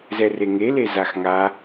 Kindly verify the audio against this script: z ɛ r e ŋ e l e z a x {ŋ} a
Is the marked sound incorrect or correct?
correct